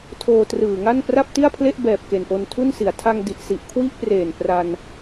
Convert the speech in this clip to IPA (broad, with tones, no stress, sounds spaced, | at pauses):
tʰ oː˧ t r ɯː˨˩ ŋ a˥˩ n p r a˥˩ p̚ t i˥˩ a̯ pʰ l e˥˩ ʔ b ɛː˨˩ p̚ k e˨˩ n ʔ o˧ n tʰ u˥˩ n s i˩˦ a̯ tʰ a˧ ŋ d i˨˩ ʔ s i˨˩ ʔ kʰ w i˥˩ ʔ p r eː˨˩ n p r a˧ n